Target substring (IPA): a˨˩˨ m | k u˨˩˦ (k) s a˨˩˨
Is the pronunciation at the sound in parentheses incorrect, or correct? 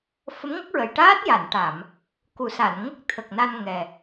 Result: incorrect: none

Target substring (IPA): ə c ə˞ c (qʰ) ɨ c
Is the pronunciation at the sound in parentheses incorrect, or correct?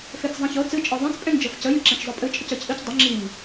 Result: incorrect: ʔ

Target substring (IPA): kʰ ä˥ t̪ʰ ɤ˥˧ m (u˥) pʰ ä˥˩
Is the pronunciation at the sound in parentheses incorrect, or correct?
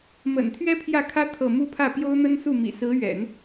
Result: incorrect: u˥˧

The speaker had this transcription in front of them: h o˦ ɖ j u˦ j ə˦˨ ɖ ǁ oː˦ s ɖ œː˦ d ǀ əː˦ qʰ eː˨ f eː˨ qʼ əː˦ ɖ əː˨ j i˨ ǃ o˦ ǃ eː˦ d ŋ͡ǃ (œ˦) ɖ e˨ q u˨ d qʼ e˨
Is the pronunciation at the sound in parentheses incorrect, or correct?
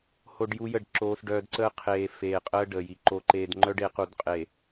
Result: correct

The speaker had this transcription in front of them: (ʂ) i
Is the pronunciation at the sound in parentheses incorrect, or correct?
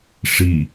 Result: correct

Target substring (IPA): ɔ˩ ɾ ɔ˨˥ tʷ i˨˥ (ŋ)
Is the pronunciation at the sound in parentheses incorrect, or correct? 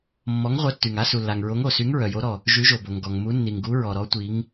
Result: correct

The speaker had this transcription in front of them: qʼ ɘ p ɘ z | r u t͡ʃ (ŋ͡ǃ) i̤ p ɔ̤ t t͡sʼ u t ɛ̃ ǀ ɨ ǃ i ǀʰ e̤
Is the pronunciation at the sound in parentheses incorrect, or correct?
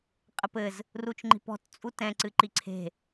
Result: correct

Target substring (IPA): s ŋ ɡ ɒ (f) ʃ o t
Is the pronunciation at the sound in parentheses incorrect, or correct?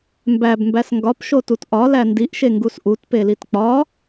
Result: incorrect: p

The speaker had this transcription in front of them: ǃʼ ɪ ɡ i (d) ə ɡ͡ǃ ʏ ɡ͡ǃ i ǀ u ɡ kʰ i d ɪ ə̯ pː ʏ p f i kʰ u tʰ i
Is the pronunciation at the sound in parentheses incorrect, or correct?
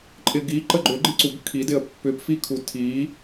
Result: incorrect: ǃ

